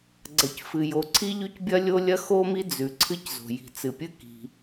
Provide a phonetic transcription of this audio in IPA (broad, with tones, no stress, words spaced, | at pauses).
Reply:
ɡ͡ǀɐ˩cfɨ˩jo˩ ǀʰi˥ʎʉ˥cbʲɐ˥lʲo˥ lʲɐ˥xo˥mi˥ d͡zʉ˩ ǀʰɨ˥czo̤˩ji̤˩ t͡sɨ˩pʲɨ˥ ki̤˩